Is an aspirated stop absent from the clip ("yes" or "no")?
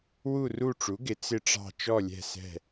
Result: yes